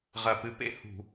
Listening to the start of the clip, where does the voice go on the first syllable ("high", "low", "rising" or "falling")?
low